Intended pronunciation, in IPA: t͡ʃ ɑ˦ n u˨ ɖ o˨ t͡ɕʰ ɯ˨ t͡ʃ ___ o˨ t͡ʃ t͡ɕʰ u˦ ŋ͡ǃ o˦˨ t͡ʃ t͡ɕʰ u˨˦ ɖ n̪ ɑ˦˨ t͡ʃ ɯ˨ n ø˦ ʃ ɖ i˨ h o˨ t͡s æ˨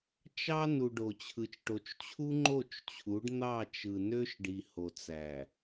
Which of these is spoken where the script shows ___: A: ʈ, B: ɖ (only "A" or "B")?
A